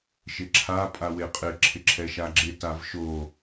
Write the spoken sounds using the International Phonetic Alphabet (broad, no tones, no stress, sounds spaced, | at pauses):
ʃ ɪ ǁʰ a pʼ a w e qʼ ɪ ǁʰ ɪ ǁʰ ɛ ʃ a ɡ͡ǁ ɪ t a v ʃ o